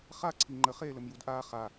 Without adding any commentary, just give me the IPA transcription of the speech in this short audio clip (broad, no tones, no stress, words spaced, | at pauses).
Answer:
χa ǀʰiŋ͡ǃə χeːləmjudʔaː χa